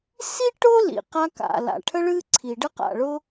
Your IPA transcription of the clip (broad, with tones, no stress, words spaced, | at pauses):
si˥ ʈʊ˥lḭ˩ qa˥ka̰˩ la̰˩ʈʰə˥ɭɨ˥ ǀʰi˩ɖə˥qa̰˩ɭʊ˥